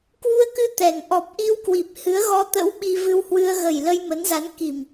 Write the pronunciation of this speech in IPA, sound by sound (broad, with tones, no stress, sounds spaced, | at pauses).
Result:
k w u˧ ə̯ k ɨ˧ t̪ ɛ˨˩ ŋ ʔ ɔ˨˩ p̚ ʔ i˧ w k w i˨˩ p̚ h ɨ˨˦ ə̯ ɣ ɔ˧ t̪ ə̰˧˥ w ɓ i˧ v ɨ˧ w h w ɨ˧ ə̯ ɣ ə˨˩ j l ə˧ j m ə˨˦ n z a˨˦ n k i˨˩ m